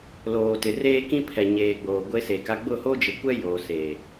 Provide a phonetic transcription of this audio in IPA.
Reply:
l oː˨ t ɪ˨ r eː˦ k ĩ˦ pʰ ɛ˨ ɲ eː˨ ɡ͡b oː˨ ɡʷ e˦ s e˨ k a˦ ɡ͡b ʊ˦˨ h o˦ d͡ʒ ɪ˨ kʷ ɛ˦ j o˨ s e˨

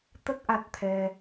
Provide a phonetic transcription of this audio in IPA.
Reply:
t̪ ə˦˥ k̚ ʔ a˦˥ t̚ t̪ʰ ɛ˧

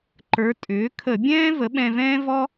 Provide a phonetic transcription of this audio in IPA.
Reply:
ǃ ə˞˩˥ tʼ ʏː˩˥ kʰ ə˧˩˧ bʲ ɛ̃ː˥ v ə˩˥ ɓ ɛ̃˧ v ɛ̃ː˥ v ɔ˥

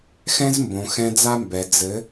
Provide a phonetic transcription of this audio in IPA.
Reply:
x ɛ̃˦ z m b õ˨ x ɛ̃˧ d͡z a˦ m b ɛ˨ d͡z ɘ˨˦

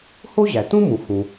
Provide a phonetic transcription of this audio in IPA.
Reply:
h o˥ ʑ æ˩ t ũ˥ m ũ˩ x ũ˩

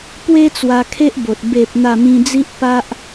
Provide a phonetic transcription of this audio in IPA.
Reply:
p w e˦ t͡s w a˧ kʰ e˦ ʔ b o˨ t̚ b e˨ p̚ n̪ a˥˧ m ĩ˦ d͡z i˦ ʔ p a˦ ʔ

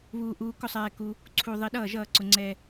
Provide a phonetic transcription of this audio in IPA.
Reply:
β uː˧ ʔ uː˧ k ʊ˥˨ sˤ ɛː˧ k u˧ | ǀʰ u˧ ðˤ i˧ ɗ ʌː˥˨ ʒ ʌː˥˨ ǀ ʊ˧ ŋ͡ǀ ɛ˧

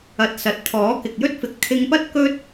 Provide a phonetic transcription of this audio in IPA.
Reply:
ɐ˨˥ t̚ s ɐ˨˥ t̚ t̪ʰ ɔː˨˥ k ɪ˨ k̚ j ɵ˥ t̚ f ɪ˨˥ k̚ t̪ʰ ɪ˧ ŋ p ɐ˥ t̚ k ɵ˥ t̚

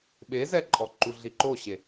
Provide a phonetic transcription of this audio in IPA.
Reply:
ɓ e z ɛ ǃʼ ɔ ǃ u ɮ i ǃ o ɕ e

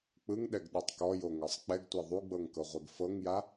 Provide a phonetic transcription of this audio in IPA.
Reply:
k͡p ɯ ŋ ɗ ɛ ɡ ɗ ɯ tˤ k ɔ j o ŋ ɤ sˤ k͡p ɛ ɡ tʷ e ðˤ u ɡ͡b ɤ ŋ k ɤ ʁʷ e ɡ f ɤ ŋ j a

